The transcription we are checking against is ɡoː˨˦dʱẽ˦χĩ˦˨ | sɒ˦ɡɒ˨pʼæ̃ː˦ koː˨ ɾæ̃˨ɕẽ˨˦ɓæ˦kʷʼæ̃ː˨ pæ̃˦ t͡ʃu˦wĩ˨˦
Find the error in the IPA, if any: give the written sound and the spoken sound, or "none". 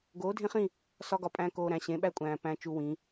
none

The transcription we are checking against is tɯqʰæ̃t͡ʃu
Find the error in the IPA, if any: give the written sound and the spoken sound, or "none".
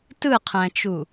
none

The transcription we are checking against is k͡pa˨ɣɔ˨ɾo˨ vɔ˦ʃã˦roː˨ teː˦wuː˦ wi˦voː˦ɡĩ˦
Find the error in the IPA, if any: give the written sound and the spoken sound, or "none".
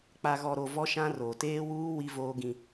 none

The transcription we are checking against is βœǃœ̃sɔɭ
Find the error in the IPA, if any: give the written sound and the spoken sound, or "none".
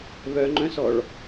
ǃ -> ŋ͡ǃ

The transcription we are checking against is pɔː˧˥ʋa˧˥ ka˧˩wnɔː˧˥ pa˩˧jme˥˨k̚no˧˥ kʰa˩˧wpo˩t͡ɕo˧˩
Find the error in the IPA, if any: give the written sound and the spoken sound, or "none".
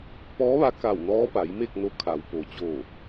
none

